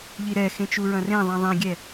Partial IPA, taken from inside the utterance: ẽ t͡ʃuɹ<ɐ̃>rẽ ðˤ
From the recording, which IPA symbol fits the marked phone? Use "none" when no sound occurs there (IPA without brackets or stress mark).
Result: ɐ̃